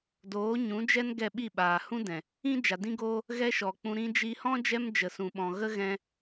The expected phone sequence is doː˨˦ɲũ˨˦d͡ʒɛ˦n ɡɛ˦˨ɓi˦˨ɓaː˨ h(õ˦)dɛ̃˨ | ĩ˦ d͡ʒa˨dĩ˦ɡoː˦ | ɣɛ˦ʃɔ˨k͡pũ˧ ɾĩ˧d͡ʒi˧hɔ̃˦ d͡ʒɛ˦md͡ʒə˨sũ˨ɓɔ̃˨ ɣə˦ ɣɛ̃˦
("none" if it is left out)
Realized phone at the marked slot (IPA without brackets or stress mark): ũ˦